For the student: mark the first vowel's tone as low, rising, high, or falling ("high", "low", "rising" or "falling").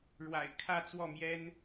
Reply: low